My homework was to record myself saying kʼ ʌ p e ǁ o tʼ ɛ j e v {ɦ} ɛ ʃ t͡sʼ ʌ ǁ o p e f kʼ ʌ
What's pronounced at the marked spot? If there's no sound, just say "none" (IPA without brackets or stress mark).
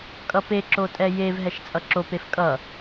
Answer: ɦ